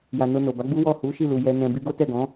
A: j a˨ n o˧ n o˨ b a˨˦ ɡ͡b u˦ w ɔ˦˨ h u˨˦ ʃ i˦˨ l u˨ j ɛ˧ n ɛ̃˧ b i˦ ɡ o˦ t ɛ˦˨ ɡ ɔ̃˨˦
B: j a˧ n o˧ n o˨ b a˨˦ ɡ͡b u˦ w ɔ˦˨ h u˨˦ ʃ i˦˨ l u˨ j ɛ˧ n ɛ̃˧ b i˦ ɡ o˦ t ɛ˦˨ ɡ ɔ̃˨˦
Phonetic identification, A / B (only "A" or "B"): A